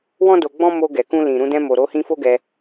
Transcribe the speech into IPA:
w ɔ̃˦ d o˧ ɡ͡b ɔ̃˦ m o˧ ɡ ɛ˨ k ũ˧ l ĩ˨ ɾ ũ˧ d ɛ̃˧ m o˨ ɾ o˨˦ h ĩ˧ f o˦ ɡ ɛ˧

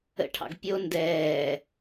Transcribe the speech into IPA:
ə̰ ʈʰ ɑ̰ ɡ pʲ o n d ɛː

